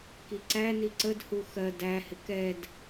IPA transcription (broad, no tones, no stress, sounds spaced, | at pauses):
k i ǀ æ n i ǀ ə d h u x ɜ d æ h ɪ k ɛ d